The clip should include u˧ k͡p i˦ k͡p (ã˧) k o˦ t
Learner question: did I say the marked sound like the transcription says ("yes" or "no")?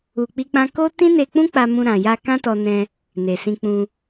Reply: no